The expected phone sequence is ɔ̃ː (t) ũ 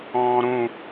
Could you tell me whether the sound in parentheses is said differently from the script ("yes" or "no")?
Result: yes